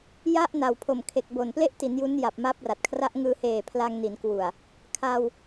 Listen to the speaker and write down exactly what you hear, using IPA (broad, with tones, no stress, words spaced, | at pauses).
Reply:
ja˥˩ʔ na˨˩wpʰo˨˩mkʰe˨˩k̚ bo˨˩nple˥˩ʔti˩˦n ju˦˥n ja˨˩p̚ma˦˥p̚ra˨˩t̚ kʰra˦˥ʔŋɯː˧heː˨˩ pʰla˧ŋni˩˦n kwu˨˩a̯ | kʰa˧w